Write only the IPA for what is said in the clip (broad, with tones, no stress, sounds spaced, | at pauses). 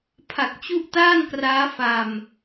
pʰ a˨˩ k̚ t͡ɕ u˦˥ ʔ t aː˥˩ n k r aː˦˥ f a˧ m